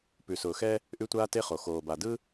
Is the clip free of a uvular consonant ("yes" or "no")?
no